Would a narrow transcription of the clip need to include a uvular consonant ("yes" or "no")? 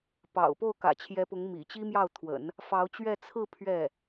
no